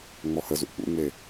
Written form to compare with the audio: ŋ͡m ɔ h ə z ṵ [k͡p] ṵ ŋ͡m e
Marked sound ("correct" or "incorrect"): correct